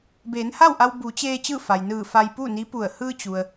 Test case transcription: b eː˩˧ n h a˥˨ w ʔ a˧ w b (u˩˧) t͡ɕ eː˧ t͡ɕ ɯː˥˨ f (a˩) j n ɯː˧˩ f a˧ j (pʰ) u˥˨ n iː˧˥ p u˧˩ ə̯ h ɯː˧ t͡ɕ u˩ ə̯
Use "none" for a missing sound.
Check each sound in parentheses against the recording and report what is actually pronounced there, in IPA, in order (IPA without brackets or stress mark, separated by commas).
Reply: u˩˧, a˩, p